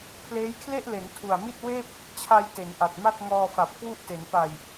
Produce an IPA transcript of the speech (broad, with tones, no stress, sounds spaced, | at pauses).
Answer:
pʰ l eː˦˥ j kʰ l e˥˩ ʔ l e˩˦ n tʰ u˨˩ a̯ m i˥˩ t̚ w eː˥˩ p̚ | t͡ɕʰ a˧ j t e˩˦ n ʔ a˨˩ t̚ m a˥˩ t̚ ŋ ɔː˧ f a˨˩ p̚ k w u˥˩ ʔ t e˩˦ n p a˨˩ j